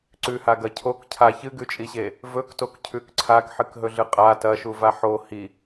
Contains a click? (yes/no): yes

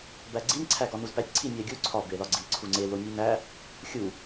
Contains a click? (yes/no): yes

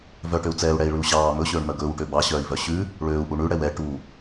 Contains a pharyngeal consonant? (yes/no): no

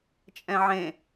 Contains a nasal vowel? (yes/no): yes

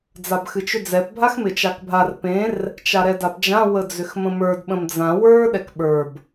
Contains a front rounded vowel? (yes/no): yes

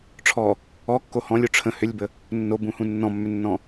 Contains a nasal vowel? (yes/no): yes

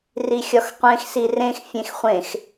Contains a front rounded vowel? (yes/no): no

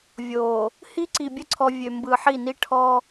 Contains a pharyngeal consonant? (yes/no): yes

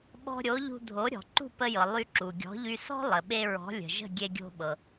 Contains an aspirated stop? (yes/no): no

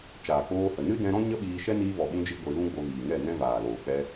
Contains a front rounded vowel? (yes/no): no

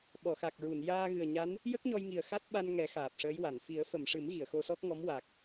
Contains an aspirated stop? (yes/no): no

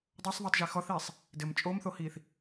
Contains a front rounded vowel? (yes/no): no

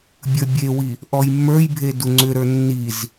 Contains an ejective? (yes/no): no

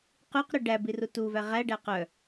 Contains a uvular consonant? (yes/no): yes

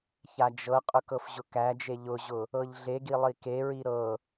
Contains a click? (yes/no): no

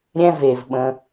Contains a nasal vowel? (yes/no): yes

